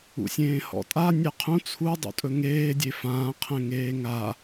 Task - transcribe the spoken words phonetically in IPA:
ṵ sʲ ẽː h ɔ̰ tʼ a nʲ ɛ qʰ ũ t͡sʰ u dˤ ṵ tʼ ɵ ŋ eː dʲ e f ãː qʰ ɛ̃ ŋ eː ŋ a

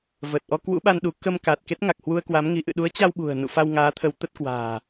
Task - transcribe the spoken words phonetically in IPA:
v əː˨˩ t̚ ʔ ɔ˧ k w ṵ˧˥ ɓ a˧ n ɗ u˨˦ k ə˧ m k aː˨˩ t̚ k e˦˥ t̚ ŋ a˨˩ k̚ h w u˧ ə̯ k w a˨˦ m ŋ i˨˦ ʔ ɨ̰˧˨ ɗ u˨˦ ə̯ t͡ɕ a˧ w ɓ ṳ˨˩ ə̯ n ṵ˧˨ f a˧ w ŋ aː˨˦ t̪ʰ ə˨˦ w t̪ ə˦˥ t̚ k w a̤ː˨˩

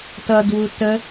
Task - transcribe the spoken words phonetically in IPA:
t ʌ d w u t ə

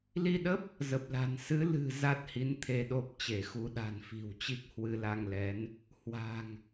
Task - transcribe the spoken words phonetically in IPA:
l i˧ ɗ ə˦˥ p̚ | z ə˨˩ p̚ l a̤˨˩ n s ɨ˨˦ l ɨ̤˨˩ z a˦˥ t̚ h i˨˦ n t̪ʰ e˧ ɗ o˦˥ p̚ t͡ɕ e˧˩ x u˨˦ ɗ a̤˨˩ n f i̤˨˩ w t͡ɕ i˦˥ k̚ h w ɨ˧ l a˧ ŋ l ɛ˨˦ n | h w a̤˨˩ ŋ

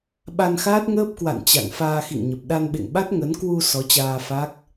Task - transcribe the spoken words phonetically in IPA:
ɓ a˧ n x aː˦˥ t̚ ŋ əː˦˥ p̚ k w a̰˧˨ n t͡ɕ a̰˧˨ ŋ f aː˧ x ḭ˧˨ ŋ ɲ ə˨˩ p̚ ɗ a˧ n ɓ ḛ˧˨ ŋ ɓ a˦˥ t̚ ŋ ə˨˦ n k w u˧ s ɔ˨˦ t͡ɕ aː˧ f a˦˥ k̚

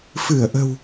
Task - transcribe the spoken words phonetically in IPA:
f ɨ˧˩ ə̯ ʔ ə̤˨˩ w

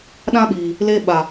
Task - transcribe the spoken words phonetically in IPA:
ɗ ã˦ ɓ iː˨ | l e˧ ɓ a˨

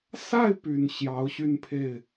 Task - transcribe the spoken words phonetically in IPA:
s a˥˩ ɪ̯ p y˨˩ n ɕ j ɑ˧˥ ʊ̯ ɕ y˥˧ n pʰ e˥˩ ɪ̯

